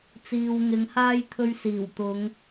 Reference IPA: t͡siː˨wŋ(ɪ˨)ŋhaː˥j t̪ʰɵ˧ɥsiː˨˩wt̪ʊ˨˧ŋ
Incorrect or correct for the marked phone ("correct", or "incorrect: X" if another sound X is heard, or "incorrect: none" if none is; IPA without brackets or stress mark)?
incorrect: ɪ˨˧